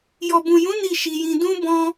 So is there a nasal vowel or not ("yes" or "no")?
yes